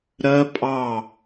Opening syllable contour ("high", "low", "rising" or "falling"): high